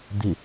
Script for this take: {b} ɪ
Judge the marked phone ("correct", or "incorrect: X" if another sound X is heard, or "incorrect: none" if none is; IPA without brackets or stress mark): incorrect: d̪